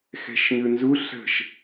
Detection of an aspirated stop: absent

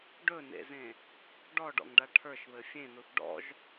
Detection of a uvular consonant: absent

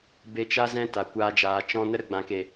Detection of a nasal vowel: present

